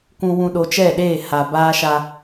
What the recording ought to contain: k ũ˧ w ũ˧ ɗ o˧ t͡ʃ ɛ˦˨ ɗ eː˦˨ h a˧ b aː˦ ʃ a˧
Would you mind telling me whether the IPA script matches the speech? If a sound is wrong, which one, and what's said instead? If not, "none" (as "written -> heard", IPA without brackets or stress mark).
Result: none